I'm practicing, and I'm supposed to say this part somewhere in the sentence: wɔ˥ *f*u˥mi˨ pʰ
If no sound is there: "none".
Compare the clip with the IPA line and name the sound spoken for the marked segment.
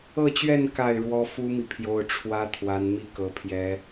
f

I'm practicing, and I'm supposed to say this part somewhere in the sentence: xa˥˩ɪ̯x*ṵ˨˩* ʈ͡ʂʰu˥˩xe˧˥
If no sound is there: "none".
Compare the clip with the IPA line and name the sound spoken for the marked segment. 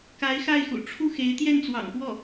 ṵ˨˩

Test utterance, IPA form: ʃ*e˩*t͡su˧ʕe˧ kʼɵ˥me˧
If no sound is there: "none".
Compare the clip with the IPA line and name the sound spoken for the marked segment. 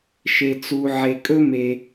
e˧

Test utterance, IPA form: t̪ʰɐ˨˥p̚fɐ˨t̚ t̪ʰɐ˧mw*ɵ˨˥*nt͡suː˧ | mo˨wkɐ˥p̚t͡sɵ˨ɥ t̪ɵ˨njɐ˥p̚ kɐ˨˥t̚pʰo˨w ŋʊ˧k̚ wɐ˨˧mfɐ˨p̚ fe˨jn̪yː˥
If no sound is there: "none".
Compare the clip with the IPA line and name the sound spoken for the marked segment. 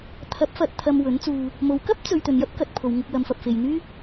ɵ˨˥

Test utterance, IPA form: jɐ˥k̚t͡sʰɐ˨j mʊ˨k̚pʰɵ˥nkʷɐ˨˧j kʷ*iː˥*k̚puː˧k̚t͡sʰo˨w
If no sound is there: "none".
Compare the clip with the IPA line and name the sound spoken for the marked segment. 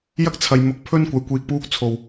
iː˨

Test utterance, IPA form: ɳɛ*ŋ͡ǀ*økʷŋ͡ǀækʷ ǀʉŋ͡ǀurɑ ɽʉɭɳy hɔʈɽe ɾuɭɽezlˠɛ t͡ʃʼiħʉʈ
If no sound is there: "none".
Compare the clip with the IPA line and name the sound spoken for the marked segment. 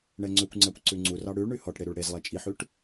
ŋ͡ǀ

